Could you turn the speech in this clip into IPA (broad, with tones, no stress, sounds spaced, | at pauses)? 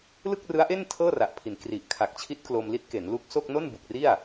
l ɯ˥˩ k̚ r ɯ˦˥ a̯ ʔ e˥˩ n tʰ ɤː˥˩ r a˨˩ ʔ pʰ i˩˦ n k r i˨˩ ʔ kʰ a˨˩ k̚ t͡ɕʰ i˦˥ t̚ k l o˧ m l i˦˥ t̚ k e˩˦ n l u˦˥ k̚ s o˥˩ k̚ n o˥˩ n b u˨˩ k̚ r i˥˩ a̯